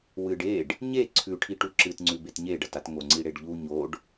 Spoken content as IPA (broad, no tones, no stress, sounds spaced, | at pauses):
w ɨ ɖ e ɖ | ɲ e ǀʰ ʉ ʈʰ i ʈ u ǁ ɨ t ŋ͡ǀ ʉ b e t ɲ e ɖ ɐ t a t ŋ o ŋ͡ǀ i ɽ e ɖ ʎ u ɲ o ɖ